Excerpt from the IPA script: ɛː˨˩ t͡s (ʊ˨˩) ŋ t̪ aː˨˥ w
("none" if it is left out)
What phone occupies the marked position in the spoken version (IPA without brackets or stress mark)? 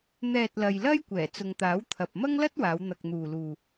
ʊ˨